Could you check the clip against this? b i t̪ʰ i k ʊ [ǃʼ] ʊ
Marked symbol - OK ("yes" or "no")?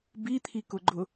no